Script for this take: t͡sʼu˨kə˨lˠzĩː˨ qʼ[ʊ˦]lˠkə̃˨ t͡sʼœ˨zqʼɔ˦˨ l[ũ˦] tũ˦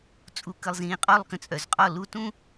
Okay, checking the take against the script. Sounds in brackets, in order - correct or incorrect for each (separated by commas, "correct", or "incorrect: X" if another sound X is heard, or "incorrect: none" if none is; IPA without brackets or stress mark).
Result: incorrect: ɔ˦, incorrect: u˦